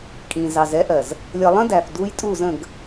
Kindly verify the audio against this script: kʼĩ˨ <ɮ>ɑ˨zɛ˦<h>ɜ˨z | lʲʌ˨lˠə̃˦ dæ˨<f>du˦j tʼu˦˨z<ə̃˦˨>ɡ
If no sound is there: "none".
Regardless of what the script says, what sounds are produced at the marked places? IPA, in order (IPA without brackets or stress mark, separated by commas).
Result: z, ʔ, f, ə̃˦˨